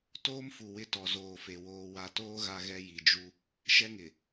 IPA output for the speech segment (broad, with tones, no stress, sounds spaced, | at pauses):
t oː˦ m f u˨ w ɪ˦ t ɔ˨ z oː˨ f e˨ w oː˨ w a˨ t oː˦ ɣ a˦ ɣ ɛ˦ j i˨ d͡ʒ u˦ | ʃ ɛ˦ ŋ ɪ˨